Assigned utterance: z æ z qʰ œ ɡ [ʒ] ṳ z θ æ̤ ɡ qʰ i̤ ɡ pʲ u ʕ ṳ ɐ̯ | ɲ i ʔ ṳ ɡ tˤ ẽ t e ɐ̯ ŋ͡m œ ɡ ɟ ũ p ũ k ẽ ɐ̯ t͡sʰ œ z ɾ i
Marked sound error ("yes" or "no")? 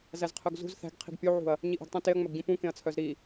yes